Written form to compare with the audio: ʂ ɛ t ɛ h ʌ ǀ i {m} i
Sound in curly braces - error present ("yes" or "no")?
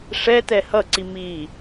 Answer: no